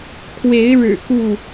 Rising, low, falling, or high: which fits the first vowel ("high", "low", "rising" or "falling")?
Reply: rising